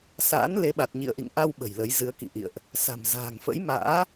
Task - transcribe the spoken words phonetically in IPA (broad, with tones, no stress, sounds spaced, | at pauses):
s a̰ː˧˥ n l e˨˦ ɓ a˨˩ t̚ ɲ ḭ˧˨ ə̯ ʔ ḭ˧˨ ŋ ʔ a˧ w ɓ ə̤˨˩ j l ə˨˦ j z ɨ˨˦ ə̯ k ḭ˧˨ ʔ ḭ˧˨ ə̯ ʔ | s a̤˨˩ m z a̤ː˨˩ ŋ f ə̰˧˥ j m a̰ː˧˥